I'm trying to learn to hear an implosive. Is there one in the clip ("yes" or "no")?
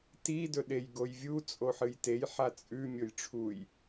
yes